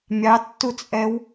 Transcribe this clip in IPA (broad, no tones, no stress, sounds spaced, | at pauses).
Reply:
mʲ ɑ tː u t͡sʼ ɛ w